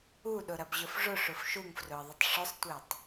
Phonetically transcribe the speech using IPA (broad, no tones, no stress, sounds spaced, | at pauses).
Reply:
u ɗ ʊ ɾ ɐ b ʑ ʊ f ʐ ʊ ʂ ʊ f ʃ u ŋ f r ʊ ə̯ ðˤ ɐ tˤ ʂ ʊ sˤ tʷ e tˤ